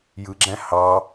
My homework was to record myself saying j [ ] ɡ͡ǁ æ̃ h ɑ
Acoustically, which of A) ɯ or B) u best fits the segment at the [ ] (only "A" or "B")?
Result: A